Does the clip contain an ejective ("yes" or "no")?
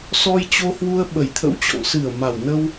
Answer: no